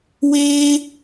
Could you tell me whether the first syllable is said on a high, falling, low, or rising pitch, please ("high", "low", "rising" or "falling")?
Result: high